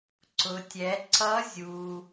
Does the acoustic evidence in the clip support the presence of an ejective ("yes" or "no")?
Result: no